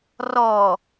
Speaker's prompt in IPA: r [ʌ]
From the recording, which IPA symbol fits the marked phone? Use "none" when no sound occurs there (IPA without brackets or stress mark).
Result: ɔ